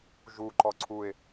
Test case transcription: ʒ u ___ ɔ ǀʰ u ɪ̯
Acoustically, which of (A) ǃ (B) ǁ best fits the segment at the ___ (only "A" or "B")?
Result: A